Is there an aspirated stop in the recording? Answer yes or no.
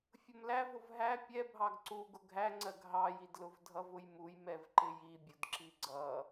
no